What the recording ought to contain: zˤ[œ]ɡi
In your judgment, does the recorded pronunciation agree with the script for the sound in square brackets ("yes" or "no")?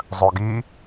yes